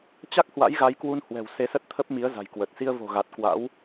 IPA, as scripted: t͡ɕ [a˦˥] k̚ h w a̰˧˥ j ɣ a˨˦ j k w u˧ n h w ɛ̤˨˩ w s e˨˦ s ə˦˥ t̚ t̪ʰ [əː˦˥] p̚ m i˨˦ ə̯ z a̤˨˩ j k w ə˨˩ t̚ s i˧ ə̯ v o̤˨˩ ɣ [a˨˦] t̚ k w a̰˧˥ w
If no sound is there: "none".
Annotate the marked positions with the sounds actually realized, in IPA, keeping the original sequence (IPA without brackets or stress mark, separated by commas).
a˦˥, ə˦˥, a˨˩